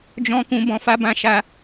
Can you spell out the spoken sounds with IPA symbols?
d͡ʒ ɔ̃˦ k ũ˦ b ɔ̃˧ f a˦ b ã˧ ʃ a˧

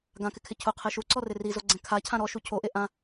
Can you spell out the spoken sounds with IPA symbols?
ɡ ã k ɪ kʰ ɪ cʰ ʊ qʰ e ʃ u ǀ ɔ r ɪ r i z o ɡ͡ǀ ɛ̃ kʰ a cʰ ã ɾ ɔ ʃ u cʰ o ʔ e ʔ ã

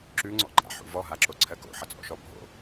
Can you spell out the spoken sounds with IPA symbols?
ǁ ʉ ŋ͡ǀ ɔ̰ ɡ͡ǃ a̰ ħ ṵ v ɔ ɦ a ǁ o ǀʰ ɜ k o̰ ħ ʌ t͡sʼ ɔ̰ ʃ ɔ bʱ o̰

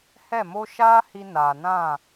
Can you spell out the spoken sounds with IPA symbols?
h ɛ˦˨ m o˦ ʃ aː˦ h i˧ n aː˨ n ã˦˨

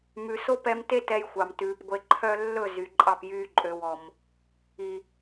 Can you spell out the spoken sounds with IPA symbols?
m ʉ˨ s o˦ p ɛ˧ m t e˦ t ɛ˧ j xʷ ɑ˨ m t ʉː˨ p ɡʷ e˨ ǃʰ œ˧ lː ɵ˦˨ z y˨ ǃʼ ɑ˦˨ p j yː˧ ǃʼ ø˨ w ɔ˨ m | i˨

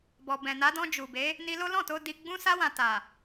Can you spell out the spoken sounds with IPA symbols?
b ɔ˨ b ɛ̃˨ n a˨˦ d ɔ̃˧ d͡ʒ u˨ b e˨˦ | n i˧ l o˦ l ɔ̃˦˨ t o˧ d i˧ ɡ͡b ũ˧ s a˧ w ã˨ t a˨

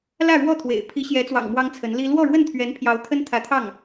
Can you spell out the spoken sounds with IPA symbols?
l ä˥˧ ɻ w ɔ˥˩ t̪ʰ w ḛ˨˩ ɪ̯ pʰ i˧˥ ɕ j ɛ˧˥ t͡s w ɑ̰˨˩ ŋ m w ɑ˥ ŋ t͡sʰ ə˧˥ n l i˥ l w ɔ˥˧ ɻ w ə˥˩ n t̪ʰ ɥ ɛ˧˥ n pʰ j ɑ˧˥ ʊ̯ t̪ʰ ə˥ n t̪ʰ ä˧˥ t̪ʰ ɑ˥˩ ŋ

